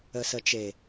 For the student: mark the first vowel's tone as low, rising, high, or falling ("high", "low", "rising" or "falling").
low